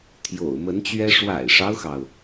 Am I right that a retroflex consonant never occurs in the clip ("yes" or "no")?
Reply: no